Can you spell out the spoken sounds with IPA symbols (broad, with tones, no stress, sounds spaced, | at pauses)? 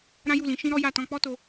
ɾ ã˦ j u˦˨ l ĩ˧ ʃ ĩ˦ ɾ ɔ˦ j a˦˨ t ɔ̃˧ k͡p ɔ˦ t o˧